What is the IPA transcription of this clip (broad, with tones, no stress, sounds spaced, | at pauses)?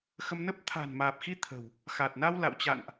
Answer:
x ə˧ m n ə˦˥ p̚ t̪ʰ a̤˨˩ n m aː˨˩ p̚ x i˧ t̪ʰ ə̤˨˩ w | x a˨˩ t̚ n a˧ w l a̰˧˨ w t͡ɕ a̰˧˨ n ʔ